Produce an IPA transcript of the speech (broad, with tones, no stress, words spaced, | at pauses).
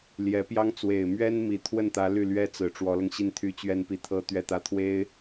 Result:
ljɛ˧˥pjɑ˥ŋ t͡swe˨˩ɪ̯mɥɛ˥n mi˨˩t̪ʰwə˥˩nt̪ä˧˥ ly˥˩lɥɛ˥t͡sɹ̩˨˩ ʈ͡ʂwɔ˧˥lɤ˧ŋɕi˥˧nt̪ʰy˥˧ t͡ɕɥɛ˥˧npi˥˩t̪ʰɤ˥ t̪ɥɛ˥˧t̪ä˥˩t̪ʰwe˥ɪ̯